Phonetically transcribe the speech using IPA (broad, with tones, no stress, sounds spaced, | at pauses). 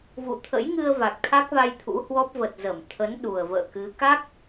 v ṵ˧˨ t̪ʰ ə̰˧˥ j ŋ ɨ˧ ə̯ v a˨˩ k̚ t̪ʰ a˦˥ k̚ v a˧ j t̪ʰ ṵ˧˥ h w ɔ˦˥ p̚ v ə˨˩ t̚ z ə˧˩ m t̪ʰ ə˨˦ n ɗ u˨˩ ə̯ v ə̰ː˧˨ k ɨ˨˦ k a˦˥ k̚